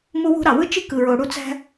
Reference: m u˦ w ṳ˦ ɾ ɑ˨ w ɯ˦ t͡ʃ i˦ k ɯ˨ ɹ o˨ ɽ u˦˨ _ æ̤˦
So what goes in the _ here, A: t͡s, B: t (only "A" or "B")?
A